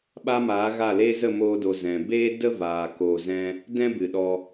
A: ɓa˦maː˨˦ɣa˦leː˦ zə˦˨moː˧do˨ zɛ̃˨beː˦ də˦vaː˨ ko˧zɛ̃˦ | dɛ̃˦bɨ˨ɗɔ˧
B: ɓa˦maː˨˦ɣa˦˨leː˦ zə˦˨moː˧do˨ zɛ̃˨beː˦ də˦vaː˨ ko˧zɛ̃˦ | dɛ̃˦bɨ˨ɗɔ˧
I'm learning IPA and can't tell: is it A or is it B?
B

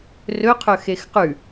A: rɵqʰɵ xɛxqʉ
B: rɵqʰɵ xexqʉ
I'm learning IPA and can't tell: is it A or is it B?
B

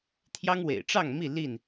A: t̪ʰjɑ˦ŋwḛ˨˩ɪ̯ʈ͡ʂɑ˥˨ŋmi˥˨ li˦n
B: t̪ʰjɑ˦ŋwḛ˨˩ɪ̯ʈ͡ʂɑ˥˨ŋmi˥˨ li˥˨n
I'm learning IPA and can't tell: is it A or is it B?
B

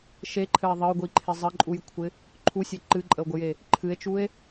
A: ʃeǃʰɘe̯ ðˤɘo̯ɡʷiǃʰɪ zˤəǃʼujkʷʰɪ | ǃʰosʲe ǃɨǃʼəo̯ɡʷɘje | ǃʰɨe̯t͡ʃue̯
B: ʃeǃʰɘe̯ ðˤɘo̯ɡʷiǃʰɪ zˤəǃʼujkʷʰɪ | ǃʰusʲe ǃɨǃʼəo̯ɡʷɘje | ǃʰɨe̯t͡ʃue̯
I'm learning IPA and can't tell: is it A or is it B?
B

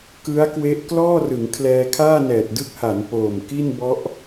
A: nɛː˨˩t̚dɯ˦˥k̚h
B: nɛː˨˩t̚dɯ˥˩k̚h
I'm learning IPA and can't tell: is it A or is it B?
A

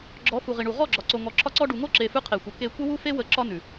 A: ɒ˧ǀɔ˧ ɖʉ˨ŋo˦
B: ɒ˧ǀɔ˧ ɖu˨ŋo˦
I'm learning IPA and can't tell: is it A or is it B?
B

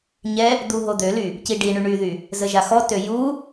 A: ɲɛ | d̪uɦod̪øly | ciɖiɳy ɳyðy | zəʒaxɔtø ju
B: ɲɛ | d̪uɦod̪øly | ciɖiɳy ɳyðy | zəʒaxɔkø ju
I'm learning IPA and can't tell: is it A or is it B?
A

